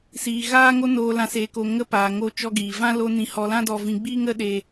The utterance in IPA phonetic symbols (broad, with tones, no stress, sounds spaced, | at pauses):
s iː˨ ɣ aː˦ ŋ o˦ n oː˨ l ã˨ s eː˨ k o˨ ŋ ə˧ p aː˨ ŋ o˧ t͡ʃ ɔ˧ ɡ iː˨ v ã˦ l o˧ n ĩ˧ h ɔ˧ l ã˦ d ɔ˧ v ĩ˧ ɡ͡b iː˦ ŋ ə˦ ɗ e˧